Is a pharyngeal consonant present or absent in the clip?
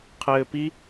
absent